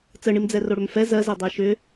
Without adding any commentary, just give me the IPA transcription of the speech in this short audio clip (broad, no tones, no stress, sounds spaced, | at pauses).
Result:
t͡s ə ɳ i m d͡z ɛ r o ɽ ʏ m f ɛ z ɜ z ɛ dˤ ɛ ʃ ʏ